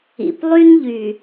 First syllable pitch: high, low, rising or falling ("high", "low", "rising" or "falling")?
low